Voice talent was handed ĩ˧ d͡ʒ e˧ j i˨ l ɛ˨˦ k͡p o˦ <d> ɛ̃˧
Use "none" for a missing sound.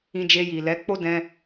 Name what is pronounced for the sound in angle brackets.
d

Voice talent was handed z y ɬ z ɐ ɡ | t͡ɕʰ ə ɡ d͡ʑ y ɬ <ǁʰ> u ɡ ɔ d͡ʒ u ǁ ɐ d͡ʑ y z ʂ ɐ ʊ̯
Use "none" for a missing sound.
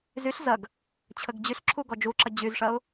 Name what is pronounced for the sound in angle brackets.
ǁʰ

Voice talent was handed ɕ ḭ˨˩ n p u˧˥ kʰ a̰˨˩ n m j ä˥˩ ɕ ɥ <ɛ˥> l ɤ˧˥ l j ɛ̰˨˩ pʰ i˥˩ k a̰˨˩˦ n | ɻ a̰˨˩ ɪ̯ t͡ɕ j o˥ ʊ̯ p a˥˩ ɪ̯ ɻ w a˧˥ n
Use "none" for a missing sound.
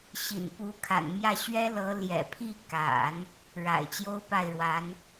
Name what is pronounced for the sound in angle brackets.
ɛ˥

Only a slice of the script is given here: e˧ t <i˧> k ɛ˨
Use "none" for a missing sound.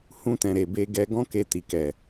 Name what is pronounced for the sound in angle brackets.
i˨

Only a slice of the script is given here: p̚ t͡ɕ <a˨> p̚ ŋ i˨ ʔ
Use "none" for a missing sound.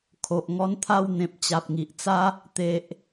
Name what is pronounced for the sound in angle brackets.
a˨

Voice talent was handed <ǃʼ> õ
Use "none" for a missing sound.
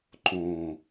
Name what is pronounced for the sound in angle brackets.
ǃ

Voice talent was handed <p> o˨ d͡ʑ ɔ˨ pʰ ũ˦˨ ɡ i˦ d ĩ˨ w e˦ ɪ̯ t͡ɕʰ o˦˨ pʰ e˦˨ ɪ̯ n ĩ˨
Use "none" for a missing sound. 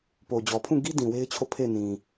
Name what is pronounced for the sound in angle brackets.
p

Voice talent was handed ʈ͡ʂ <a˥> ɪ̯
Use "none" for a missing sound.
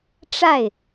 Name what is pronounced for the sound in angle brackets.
a˥˩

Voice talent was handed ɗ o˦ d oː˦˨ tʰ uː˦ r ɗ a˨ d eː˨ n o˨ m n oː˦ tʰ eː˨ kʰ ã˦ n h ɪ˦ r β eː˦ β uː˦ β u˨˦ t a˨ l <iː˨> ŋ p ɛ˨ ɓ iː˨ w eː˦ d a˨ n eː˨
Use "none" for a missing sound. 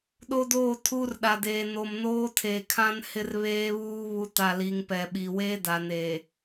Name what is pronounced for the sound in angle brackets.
i˨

